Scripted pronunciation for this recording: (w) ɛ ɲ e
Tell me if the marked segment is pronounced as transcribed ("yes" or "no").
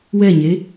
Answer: yes